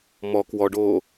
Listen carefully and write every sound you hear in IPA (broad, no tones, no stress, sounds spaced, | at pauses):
m ɔ k w ɔ ɖ oː